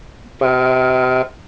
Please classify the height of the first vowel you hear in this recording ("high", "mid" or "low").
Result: low